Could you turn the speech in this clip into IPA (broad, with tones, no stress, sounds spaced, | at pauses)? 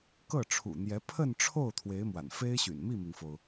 k ɤ˥˩ ʈ͡ʂʰ ṵ˨˩ n̪ j ɛ˧˥ pʰ ə˥˧ n ʈ͡ʂʰ o˥˩ ʊ̯ t̪ʰ w e˧˥ ɪ̯ m w a̰˨˩ n f e˥ ɪ̯ ɕ y̰˨˩ n m i˥˩ m i˩ ŋ f o˩ ʊ̯